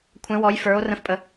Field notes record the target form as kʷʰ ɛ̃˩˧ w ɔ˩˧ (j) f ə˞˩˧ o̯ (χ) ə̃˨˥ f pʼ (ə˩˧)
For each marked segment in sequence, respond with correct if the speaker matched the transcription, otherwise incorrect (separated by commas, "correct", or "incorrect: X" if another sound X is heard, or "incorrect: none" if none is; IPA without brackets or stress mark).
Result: correct, incorrect: r, correct